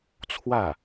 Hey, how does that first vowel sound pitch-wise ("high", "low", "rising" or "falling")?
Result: falling